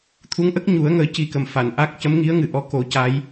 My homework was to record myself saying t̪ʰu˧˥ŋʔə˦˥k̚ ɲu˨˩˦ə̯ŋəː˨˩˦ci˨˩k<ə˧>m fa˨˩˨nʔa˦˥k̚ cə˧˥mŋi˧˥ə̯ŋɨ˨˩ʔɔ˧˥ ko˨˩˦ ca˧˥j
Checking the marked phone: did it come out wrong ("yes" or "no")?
yes